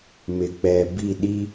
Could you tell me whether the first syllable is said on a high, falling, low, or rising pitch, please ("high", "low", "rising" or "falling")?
low